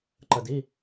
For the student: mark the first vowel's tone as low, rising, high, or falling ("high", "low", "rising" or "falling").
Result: low